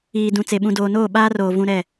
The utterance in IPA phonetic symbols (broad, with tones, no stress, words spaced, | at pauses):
iː˨ dũ˨ t͡se˨ ɓũ˨doː˨noː˦˨ ɓaː˦roː˨ vũ˨ ɾɛ˦˨